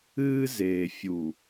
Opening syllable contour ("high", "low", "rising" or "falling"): high